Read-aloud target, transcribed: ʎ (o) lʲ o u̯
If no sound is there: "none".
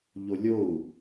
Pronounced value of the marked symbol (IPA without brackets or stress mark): o